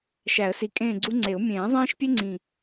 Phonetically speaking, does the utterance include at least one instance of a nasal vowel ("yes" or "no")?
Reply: yes